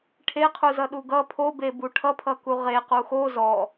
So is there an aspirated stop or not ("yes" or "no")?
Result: yes